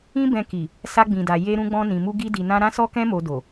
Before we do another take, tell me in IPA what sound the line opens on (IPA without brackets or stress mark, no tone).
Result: ĩ